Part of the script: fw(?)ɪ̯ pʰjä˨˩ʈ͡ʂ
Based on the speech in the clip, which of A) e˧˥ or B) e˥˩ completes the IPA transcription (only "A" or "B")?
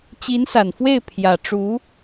B